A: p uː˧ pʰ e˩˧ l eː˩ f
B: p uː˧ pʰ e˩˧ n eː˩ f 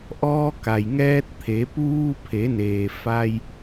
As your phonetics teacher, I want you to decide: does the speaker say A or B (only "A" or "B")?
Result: B